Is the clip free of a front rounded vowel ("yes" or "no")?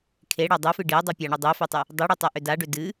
no